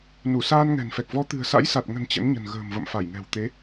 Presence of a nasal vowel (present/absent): absent